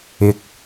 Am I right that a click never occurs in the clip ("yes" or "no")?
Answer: yes